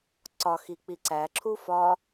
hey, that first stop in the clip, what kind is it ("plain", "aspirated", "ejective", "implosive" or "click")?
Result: click